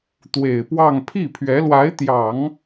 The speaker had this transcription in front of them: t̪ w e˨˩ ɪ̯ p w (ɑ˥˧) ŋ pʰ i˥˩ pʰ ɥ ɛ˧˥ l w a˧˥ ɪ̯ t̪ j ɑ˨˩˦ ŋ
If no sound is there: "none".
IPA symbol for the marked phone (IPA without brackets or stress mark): ɑ˥˧